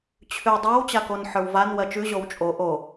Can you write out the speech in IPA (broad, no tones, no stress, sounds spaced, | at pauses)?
t͡ɕʰ ʉ dˤ a w t͡ɕ a k o n ħ ə˞ w v a n w ɜ t͡ʃ ʉ ʑ o w t͡ʃʼ o ʔ o